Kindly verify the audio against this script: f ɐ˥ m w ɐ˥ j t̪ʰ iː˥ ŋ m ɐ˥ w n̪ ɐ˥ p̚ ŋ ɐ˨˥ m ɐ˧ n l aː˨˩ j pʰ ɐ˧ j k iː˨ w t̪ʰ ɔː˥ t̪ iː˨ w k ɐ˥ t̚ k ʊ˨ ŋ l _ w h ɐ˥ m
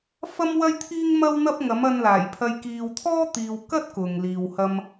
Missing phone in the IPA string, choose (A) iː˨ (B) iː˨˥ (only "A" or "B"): A